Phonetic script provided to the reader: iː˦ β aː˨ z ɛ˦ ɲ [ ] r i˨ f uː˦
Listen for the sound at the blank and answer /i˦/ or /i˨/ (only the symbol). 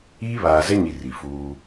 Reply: i˨